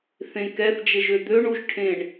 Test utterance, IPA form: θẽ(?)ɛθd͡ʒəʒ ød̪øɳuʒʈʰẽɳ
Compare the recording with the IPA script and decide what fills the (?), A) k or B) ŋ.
A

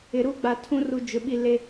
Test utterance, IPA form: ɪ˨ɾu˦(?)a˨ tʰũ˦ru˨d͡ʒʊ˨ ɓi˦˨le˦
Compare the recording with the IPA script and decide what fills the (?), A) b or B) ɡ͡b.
B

